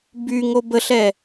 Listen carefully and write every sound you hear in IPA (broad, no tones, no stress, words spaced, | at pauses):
byŋo bəɬɛ